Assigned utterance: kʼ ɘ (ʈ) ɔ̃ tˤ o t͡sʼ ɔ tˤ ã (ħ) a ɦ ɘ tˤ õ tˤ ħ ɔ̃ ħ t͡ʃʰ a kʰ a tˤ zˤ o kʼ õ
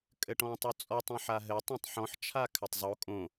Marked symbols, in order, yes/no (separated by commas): yes, yes